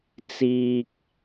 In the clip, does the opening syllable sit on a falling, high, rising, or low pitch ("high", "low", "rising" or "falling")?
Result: low